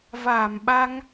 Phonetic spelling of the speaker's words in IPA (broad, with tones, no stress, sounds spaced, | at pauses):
v aː˧˩ m ɓ a˧ ŋ